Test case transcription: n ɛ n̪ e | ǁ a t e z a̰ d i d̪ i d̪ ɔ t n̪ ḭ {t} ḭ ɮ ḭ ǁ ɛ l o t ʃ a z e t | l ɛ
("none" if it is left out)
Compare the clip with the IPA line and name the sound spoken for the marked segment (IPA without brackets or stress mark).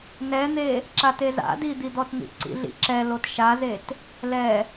ǀ